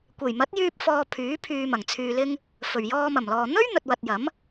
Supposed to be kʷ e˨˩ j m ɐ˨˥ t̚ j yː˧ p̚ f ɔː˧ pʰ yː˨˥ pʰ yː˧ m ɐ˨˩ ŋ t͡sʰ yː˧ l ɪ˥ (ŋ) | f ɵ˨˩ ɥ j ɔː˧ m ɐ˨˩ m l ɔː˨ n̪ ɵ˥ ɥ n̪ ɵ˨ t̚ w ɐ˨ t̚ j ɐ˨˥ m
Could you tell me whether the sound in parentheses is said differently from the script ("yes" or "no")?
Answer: no